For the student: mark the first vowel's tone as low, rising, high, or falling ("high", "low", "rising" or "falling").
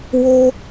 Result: high